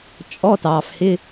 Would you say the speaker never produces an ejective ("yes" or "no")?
no